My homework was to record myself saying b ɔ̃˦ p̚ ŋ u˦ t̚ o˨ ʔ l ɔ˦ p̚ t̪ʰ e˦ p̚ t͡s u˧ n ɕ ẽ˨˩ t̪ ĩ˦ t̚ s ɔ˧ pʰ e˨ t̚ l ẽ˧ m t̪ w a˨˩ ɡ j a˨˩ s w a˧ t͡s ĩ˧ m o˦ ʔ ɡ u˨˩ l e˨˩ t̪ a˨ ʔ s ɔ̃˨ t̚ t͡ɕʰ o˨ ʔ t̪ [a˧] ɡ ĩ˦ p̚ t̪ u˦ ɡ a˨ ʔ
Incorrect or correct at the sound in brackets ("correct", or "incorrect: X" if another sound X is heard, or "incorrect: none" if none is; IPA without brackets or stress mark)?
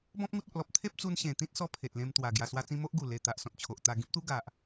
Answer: correct